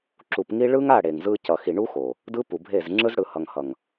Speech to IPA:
ǁ u˨ p ŋ i˦ ɭ ɯ˦ ŋ a˦˨ ɽ e˨ ŋ z ɯ˦ c ʌ˨ x i˨ ɳ u˦ x o˨ | d ɯ˦ p u˨ bʱ e˦˨ z ŋ͡ǁ ɯ˦ z ɽ ɯ˨ h ʌ˨ ŋ h ʌ˨ ŋ

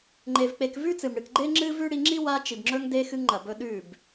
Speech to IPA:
ŋ͡ǃ e˧ v k͡p e˧ k v ʉ˦ t͡s ɨ˨ m ɽ ɨ˨ k ɡ͡ǃ e˦ ŋ͡ǁ ɨ˦ v ʉ˦ ɽ i˧ ŋ͡ǁ i˦ w a˧ t͡ʃ i˨ b ŋ͡ǁ ɵ˧ ŋ d e˧ x ɨ˧ ŋ ŋ͡ǃ ɐ˨ b ɵ˧ ɗ ʉ˦˨ b

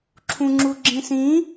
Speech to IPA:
ǁʰ ũ ŋ͡ǁ u ɡ͡ǁ ĩ s ĩ

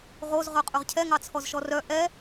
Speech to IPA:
ʁ o z ʁ œ qʼ ɵ ʁ cʰ ɛ ŋ ɑ t͡sʰ ɔ z ʃ ɔ r œ ʔ ɛ

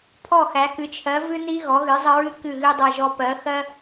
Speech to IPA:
pʰ ɔ˦˨ x æ˨˦ k ɨ˨˦ t͡ʃʰ ɜ˨˦ v ɨ˦ n i˦ ɣ ɔ˨˦ ɣ ɨ˨˦ zˤ ə˦ ɹ ɨ˦ k ɨ˦˨ ɣ ɨ˦ dˤ ɛ˦˨ ʒ ɔ˦ p ɜ˨˦ x ɜ˦

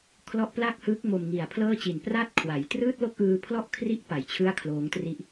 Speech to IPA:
kʰ l ɔ˦˥ ʔ p l a˥˩ k̚ h ɯː˦˥ k̚ m o˧ m ŋ i˨˩ a̯ pʰ l ɤː˥˩ t͡ɕ i˨˩ n p r a˥˩ t̚ kʰ w a˩˦ j t r ɯː˥˩ t̚ l o˥˩ k̚ ʔ ɯː˧ pʰ l ɔ˥˩ ʔ kʰ r i˥˩ ʔ p a˨˩ j t͡ɕʰ ɯ˥˩ a̯ kʰ l oː˦˥ ŋ t r i˦˥ ʔ

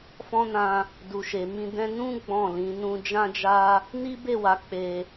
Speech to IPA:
f ɔ̃˦ n ã˧ | d u˨ ʃ e˨ m ĩ˧ d ɛ̃˧ n ũ˦ ɡ͡b ɔ̃˦˨ l ĩ˨˦ n ũ˧ d͡ʒ ã˦ d͡ʒ a˦ | n i˦ b e˦˨ w a˨˦ k͡p e˧

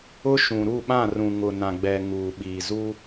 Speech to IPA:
ʊ˦ ʃ ũ˨ ɾ u˦˨ ɓ ã˦˨ r ũ˨ ŋ ʊ˨ n ã˨ ɡ͡b ɛ˨ ŋ uː˨ ɓ iː˨ z u˦

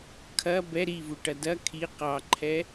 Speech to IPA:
kʰ ɐ b ɛ ɾ i v u ʈ ɐ d ɐ kʰ i q ɑ ǃʰ ɛ

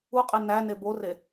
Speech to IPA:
u qʼ e n æ n e b o r e

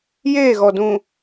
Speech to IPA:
j eː˦˨ ɣ ɔ˨ d ũ˨

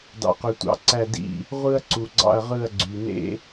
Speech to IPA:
d ɑ̰˩ q ø˩ tʷ ɑ̰˩ ǀ æ˧˩ d ḭ˧˩ | ʁʷ ɯ˧ ɐ̯ ǀ u˩ ɡ͡ǀ ɑ̰˧˩ ɐ̯ ʁ ɯ˧˩ ɐ̯ ɡ͡ǀ y˩ n ḛ˧

